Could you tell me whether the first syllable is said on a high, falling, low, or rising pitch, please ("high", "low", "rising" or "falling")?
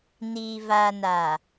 low